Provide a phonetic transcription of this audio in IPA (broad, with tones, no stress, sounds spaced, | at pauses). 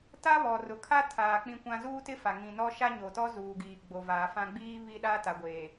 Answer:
t a˦ β ɔ˨ r ʊ˨ kʰ a˦ tʰ aː˨ k͡p ĩ˦ kʷ ã˦ z uː˦ t ɪ˦ f a˨ ŋ ĩ˨ n ɔ˦ ʃ a˦ ɲ o˨ t ɔ˦ z uː˨ ɡ iː˨ ɡ͡b o˨ v aː˨ f ã˦ ɡ͡b iː˦ β i˦ ɗ a˦ t a˨ ɡʷ eː˨